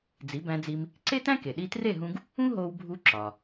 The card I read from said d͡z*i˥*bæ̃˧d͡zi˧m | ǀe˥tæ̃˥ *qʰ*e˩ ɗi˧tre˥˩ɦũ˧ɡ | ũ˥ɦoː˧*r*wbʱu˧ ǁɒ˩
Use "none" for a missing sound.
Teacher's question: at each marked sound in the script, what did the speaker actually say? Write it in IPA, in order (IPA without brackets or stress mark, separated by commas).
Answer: i˩˥, k, none